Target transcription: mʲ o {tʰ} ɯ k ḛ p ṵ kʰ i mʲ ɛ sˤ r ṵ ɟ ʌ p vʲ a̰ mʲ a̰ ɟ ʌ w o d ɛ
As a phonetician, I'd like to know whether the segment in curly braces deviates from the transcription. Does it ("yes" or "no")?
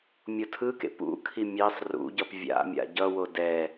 no